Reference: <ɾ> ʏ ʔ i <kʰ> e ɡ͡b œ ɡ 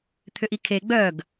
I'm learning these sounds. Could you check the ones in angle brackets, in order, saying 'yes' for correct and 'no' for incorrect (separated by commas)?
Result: no, yes